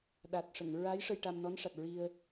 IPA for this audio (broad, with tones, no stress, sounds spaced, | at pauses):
ɗ a˨˩ t̚ ʂ ə˨˩˨ ŋ ɹ a˧˥ j ʂ ə˧ j ʈ a˧ m n ɔ˧˥ n ʂ a˨˩ t̚ ɹ i˧ ə̯